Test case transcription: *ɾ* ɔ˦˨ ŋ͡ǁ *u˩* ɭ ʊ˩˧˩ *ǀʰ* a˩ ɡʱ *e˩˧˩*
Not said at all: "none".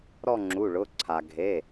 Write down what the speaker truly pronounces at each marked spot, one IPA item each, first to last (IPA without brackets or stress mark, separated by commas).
ɾ, u˩˧˩, ǀʰ, e˩˧˩